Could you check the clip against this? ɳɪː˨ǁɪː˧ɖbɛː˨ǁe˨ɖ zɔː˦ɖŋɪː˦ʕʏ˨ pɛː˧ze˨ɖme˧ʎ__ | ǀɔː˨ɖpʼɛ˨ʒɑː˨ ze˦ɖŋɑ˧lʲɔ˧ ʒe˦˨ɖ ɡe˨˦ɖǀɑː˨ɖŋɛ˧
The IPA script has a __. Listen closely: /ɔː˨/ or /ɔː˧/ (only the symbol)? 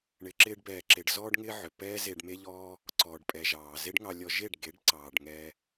ɔː˧